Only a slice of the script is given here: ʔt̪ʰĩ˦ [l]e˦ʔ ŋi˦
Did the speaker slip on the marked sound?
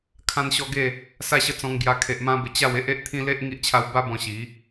no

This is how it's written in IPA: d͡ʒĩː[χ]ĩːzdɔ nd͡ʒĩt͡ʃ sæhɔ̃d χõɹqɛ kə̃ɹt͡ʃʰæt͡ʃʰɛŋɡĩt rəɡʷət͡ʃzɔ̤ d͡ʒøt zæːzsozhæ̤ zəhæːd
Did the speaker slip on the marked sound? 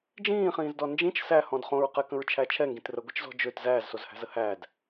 no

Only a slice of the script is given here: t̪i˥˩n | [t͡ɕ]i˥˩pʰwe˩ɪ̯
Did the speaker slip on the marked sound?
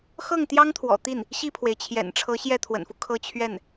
yes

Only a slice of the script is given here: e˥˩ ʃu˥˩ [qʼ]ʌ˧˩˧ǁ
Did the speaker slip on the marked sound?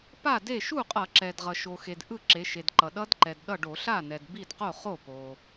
no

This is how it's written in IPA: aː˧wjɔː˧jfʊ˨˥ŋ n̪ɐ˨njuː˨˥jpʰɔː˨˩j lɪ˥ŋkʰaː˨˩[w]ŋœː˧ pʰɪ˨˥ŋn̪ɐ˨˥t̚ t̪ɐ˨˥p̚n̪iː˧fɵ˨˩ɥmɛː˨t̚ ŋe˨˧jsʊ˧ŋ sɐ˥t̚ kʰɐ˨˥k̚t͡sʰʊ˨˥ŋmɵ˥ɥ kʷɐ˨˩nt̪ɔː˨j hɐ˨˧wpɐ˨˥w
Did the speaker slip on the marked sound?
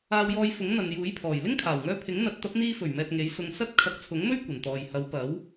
no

